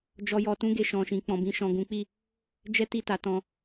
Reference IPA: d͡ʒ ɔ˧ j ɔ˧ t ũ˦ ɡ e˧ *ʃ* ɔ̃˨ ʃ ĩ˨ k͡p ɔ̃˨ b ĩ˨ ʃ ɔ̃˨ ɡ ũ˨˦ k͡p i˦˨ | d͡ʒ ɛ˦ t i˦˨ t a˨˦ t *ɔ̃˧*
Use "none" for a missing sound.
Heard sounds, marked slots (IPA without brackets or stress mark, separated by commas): ʃ, ɔ̃˧